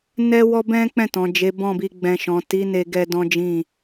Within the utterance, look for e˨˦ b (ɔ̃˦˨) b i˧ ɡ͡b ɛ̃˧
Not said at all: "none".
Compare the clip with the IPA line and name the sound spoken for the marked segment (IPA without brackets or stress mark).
ɔ̃˦˨